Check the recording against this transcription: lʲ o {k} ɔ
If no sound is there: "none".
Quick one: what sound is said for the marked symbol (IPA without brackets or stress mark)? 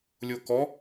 k